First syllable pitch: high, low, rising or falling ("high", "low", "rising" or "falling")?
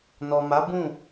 low